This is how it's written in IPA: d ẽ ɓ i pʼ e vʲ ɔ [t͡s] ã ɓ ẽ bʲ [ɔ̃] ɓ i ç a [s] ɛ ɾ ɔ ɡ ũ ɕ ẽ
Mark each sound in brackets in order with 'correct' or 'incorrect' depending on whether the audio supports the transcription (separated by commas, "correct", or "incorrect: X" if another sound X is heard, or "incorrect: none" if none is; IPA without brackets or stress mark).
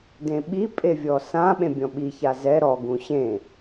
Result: incorrect: s, correct, incorrect: z